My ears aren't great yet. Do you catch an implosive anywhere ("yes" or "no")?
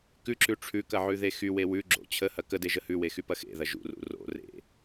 no